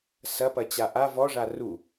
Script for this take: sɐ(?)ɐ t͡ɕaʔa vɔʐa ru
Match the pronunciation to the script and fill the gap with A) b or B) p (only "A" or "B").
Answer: B